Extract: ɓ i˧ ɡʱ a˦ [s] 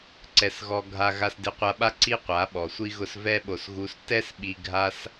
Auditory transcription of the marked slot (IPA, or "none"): s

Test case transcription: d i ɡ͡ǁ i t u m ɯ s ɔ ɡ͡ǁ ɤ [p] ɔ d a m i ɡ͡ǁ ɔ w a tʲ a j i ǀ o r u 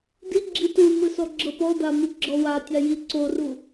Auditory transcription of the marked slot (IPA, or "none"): p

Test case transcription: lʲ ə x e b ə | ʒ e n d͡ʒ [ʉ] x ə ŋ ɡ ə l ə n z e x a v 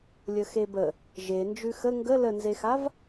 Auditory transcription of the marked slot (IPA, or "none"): ʉ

